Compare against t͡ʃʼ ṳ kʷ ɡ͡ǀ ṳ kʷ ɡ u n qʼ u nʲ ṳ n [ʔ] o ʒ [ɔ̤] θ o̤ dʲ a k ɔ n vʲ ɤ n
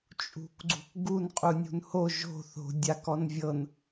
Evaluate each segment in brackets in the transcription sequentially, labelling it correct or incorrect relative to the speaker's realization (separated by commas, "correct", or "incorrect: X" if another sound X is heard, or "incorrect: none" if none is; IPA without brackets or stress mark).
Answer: incorrect: h, incorrect: o̤